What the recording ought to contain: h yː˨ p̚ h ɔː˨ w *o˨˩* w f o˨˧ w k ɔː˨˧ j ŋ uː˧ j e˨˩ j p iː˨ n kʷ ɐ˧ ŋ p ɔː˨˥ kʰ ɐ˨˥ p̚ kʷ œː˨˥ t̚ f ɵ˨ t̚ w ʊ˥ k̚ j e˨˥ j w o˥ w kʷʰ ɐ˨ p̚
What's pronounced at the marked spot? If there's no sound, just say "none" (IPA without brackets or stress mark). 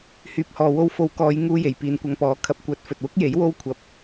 o˧